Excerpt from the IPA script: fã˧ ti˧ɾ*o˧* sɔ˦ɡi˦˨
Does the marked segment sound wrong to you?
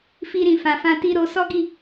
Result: no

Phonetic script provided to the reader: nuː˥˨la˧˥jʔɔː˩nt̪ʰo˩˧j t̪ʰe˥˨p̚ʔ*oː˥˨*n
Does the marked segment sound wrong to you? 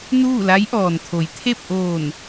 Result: yes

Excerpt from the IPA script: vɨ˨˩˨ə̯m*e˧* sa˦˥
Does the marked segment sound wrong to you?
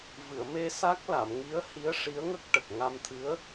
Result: no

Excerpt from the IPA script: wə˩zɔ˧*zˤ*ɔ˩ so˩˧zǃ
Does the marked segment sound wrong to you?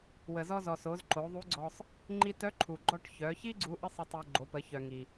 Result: yes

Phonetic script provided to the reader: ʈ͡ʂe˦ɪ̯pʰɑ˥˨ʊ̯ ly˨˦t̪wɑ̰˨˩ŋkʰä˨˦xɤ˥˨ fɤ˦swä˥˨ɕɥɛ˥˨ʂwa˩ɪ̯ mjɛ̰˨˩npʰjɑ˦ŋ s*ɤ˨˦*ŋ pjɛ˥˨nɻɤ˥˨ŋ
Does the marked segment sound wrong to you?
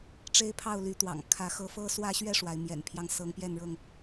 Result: no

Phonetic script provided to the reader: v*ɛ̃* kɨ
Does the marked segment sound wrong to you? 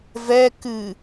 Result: yes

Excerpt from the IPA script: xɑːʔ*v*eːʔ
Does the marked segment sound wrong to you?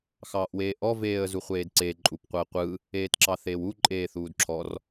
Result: yes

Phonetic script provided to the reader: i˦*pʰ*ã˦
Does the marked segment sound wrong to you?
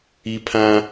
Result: no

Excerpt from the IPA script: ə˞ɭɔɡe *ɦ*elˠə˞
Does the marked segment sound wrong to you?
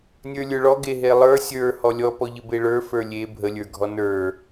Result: no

